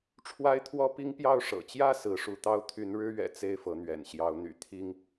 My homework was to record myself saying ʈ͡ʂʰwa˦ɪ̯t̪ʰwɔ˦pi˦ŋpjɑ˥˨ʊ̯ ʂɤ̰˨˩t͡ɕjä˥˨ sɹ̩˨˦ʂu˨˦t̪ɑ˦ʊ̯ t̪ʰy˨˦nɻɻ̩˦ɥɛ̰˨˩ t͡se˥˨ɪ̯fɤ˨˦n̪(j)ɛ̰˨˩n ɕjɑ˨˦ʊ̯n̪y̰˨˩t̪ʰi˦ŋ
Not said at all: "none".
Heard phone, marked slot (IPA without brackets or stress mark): ɥ